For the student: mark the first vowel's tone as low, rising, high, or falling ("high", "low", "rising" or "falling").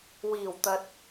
low